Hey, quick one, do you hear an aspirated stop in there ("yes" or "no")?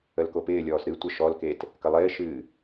no